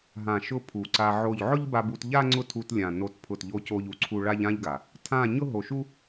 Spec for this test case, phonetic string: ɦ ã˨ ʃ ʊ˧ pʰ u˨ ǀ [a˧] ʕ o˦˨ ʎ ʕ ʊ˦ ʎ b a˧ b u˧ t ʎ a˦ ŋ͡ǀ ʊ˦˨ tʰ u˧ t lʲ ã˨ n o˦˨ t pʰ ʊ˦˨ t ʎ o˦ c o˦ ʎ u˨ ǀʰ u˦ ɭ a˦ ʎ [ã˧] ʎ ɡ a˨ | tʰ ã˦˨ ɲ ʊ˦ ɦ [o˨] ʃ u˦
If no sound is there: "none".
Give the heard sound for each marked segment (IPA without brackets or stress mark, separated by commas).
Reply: a˧, ã˦, o˨